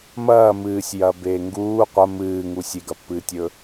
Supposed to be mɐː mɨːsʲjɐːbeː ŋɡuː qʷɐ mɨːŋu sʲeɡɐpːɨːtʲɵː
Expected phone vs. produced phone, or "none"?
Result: none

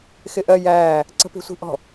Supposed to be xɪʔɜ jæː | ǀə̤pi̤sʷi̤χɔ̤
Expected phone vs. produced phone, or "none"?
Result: χ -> ʔ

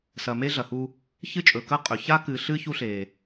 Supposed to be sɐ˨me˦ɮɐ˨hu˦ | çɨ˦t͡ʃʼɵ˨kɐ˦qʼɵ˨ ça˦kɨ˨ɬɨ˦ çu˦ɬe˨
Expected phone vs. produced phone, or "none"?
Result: none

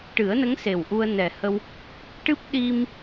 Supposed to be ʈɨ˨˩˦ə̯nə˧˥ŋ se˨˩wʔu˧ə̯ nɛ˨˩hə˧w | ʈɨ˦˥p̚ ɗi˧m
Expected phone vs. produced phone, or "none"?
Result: none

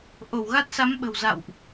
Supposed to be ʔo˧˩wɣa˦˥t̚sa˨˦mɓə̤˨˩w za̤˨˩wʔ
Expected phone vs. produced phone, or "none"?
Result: a̤˨˩ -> a̰˧˨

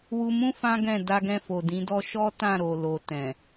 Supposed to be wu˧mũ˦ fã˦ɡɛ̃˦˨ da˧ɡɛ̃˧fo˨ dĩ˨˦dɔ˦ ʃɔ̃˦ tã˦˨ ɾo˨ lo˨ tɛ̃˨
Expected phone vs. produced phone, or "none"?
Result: ɔ̃˦ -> ɔ˦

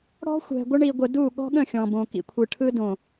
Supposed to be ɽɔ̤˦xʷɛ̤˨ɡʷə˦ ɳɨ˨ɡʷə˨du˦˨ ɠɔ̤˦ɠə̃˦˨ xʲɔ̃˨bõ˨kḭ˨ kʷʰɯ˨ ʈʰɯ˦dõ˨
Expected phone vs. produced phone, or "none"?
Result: ɨ˨ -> i˨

